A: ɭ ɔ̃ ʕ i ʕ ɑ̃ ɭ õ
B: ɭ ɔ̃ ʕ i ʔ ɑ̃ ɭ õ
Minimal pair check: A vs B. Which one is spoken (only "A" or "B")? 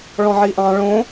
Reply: B